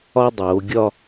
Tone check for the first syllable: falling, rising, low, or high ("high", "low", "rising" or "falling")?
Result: high